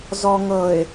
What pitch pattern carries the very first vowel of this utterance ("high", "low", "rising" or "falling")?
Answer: low